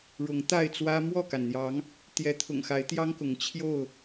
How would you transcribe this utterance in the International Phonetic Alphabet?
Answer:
ɻ ʊ˨˦ ŋ t̪ a˥˨ ɪ̯ t͡s w ä˦ m w ɔ˥˨ k a˩ n n̪ j ɑ˨˦ ŋ | t̪ j ɛ˨˦ t̪ʰ ʊ̰˨˩ ŋ x a˨˦ ɪ̯ t̪ j ɑ˦ ŋ k ʊ˨˦ ŋ t͡ɕʰ j o˥˨ ʊ̯

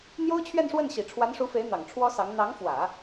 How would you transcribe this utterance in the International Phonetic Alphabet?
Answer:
n̪ j o˥ ʊ̯ t͡ɕʰ ɥ ɛ˥˧ n ʂ w ə˥˩ n ɕ i˨˩ ʈ͡ʂʰ w a˧˥ n ʂ u˧˥ f e˧˥ ɪ̯ n̪ ɑ˨˩ ŋ ʈ͡ʂʰ w ɔ˥ s ɑ˧˥ ŋ n̪ ɑ˧˥ ŋ f w ä˨˩˦

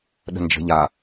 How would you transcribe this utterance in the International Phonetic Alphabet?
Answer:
ɗ ə̤ n d͡ʒ ə̤ ʎ a

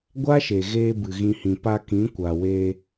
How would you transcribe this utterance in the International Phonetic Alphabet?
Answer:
ɡʷ a˦ ʃ e˨ ɣ eː˧ b ɨ˨ ɣ ĩ˧ h ĩ˨ p a˧ k ĩ˨˦ kʷ a˨ w eː˧

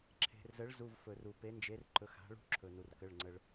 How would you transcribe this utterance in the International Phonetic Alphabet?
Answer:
ǁʰ e̤˩ r z ə˩˥ ɭ z u˩˧˩ v f ɵ˩ r u˩ p e˩˥ n d͡ʒ e˩˥ r ǃ ɵ˩˥ x a̤˩˥ ɭ ṳ˦ ǁʰ ɵ˩ n u˩ r k ə˩˧˩ ɭ ŋ͡ǀ ə˩ ɭ

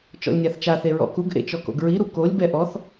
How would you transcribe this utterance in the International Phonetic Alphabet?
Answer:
t͡ʃ ɔ̰ lʲ nʲ a θ t͡ʃ a θ e ɹ ɔ̰ k u ɡ ʔ ḛ t͡ʃ ɔ k o̰ ɡ ɹ i ɾ u k o lʲ b ɛ ʔ ɔ θ

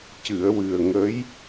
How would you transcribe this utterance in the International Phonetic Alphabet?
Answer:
c ɨ˨˩˨ ə̯ w ɨ˨˩ ə̯ ŋ ə˧˥ j

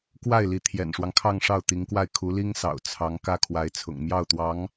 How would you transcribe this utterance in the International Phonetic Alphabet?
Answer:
k w a˥˩ ɪ̯ l i˧˥ t̪ʰ j ɛ̰˨˩ n ʂ w ɑ˦ ŋ kʰ ɑ˥˧ ŋ ʂ ɑ˥˩ ʊ̯ t̪ i˧˥ ŋ k w a˥˩ ɪ̯ kʰ u˧˥ l i˥ ŋ s ɑ̰˨˩ ʊ̯ t͡sʰ ɑ˧˥ ŋ k ä˥ kʰ w a˧˥ ɪ̯ t͡sʰ ʊ̰˨˩ ŋ m j ɑ˥˩ ʊ̯ t̪ w ɑ˧˥ ŋ

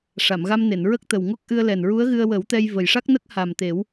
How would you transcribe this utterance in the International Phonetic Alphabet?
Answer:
ʂ a˨˩˨ m ɣ a˧ m n e˨˩˨ n ɹ ə˦˥ k̚ t̪ ə˨˩ w ŋ o˦˥ k̚ ʔ ɨ˧ ə̯ l ɛ˨˩ n ɹ u˧˥ ə̯ ɣ ɨ˧ ə̯ w ə˨˩˦ w t̪ ɛ˧ j v ə˨˩ j ʂ a˦˥ k̚ n ə˦˥ k̚ h a˨˩ m t̪ e˨˩˦ w

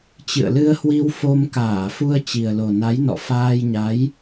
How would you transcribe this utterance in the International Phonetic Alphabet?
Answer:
t͡ɕ ɨ̰˧˨ ə̯ l ɨ˧ ə̯ h w i˧ w f o˧ m k aː˧˩ f u˧ ə̯ t͡ɕ i˨˩ ə̯ l o˨˩ n a˨˦ j n ɔ̰˧˨ f aː˧ j ɲ a˨˦ j

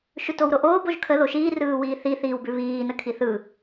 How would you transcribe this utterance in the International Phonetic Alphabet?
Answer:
ʃ ʉ t o w ɾ o ʔ oː b o ʒ kʰ ə ð o ʃ iː r ɯː w iː θ i θ iː w b ʉ β iː n ə kʰ i θ ɯ

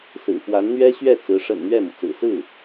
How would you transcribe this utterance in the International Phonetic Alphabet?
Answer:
s ɹ̩˨˩ f w a˧˥ n n̪ ɥ ɛ˥ ɕ ɥ ɛ˥˩ t͡s ɹ̩˧˥ ʂ ə̰˨˩ n n̪ ɥ ɛ˥˩ m u˩ t͡s ɹ̩˨˩ s ɹ̩˥˩

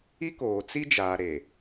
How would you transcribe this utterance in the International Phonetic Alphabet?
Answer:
i˦ k oː˨ t͡s i˦ d͡ʒ aː˨ ɾ e˨

